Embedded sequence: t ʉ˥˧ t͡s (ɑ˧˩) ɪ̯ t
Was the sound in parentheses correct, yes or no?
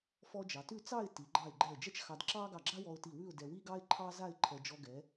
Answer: no